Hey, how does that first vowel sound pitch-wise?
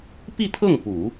falling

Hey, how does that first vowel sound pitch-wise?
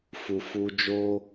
low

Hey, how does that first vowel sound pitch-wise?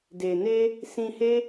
low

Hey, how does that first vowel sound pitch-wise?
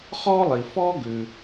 high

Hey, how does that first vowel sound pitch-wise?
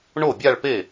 falling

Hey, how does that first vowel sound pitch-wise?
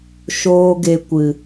high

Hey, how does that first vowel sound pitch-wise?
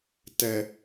low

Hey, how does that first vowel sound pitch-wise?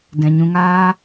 low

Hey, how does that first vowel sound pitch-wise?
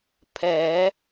rising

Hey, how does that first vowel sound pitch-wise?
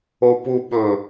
low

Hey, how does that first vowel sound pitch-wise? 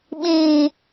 low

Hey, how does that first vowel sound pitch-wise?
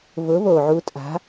rising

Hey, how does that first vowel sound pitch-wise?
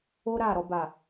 high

